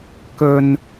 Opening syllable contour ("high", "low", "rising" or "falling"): low